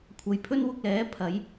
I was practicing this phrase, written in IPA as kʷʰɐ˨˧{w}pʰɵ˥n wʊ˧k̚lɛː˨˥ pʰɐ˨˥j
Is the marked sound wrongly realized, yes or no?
yes